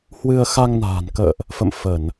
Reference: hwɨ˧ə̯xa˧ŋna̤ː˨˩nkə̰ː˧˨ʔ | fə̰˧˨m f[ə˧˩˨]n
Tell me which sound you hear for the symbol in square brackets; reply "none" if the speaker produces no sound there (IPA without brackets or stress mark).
ə˧˩˨